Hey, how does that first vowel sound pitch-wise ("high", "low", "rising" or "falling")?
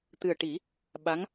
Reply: low